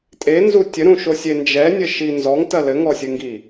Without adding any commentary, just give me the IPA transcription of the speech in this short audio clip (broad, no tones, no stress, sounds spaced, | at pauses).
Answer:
tʼ e n z u tʲ ɘ ɾ ũ ʃ o sʲ e n d͡ʒ ɛ nʲ ɘ ʃ i n z ɔ ŋ t ɐ l ɘ ŋ ɔ sʲ ɨ ŋ ɡ i